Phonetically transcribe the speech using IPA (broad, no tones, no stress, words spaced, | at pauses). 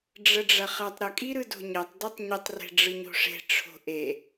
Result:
ɖ͡ʐəɖ͡ʐɐχɐtˤ ɾəkʼiɾɯ do̤ɲɐtˤ dɯtˤɲətˤre̤ ɖ͡ʐɯɲo̤ʂe̤ ʈ͡ʂʰo̤ʔe